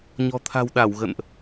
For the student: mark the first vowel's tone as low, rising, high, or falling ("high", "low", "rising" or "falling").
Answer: low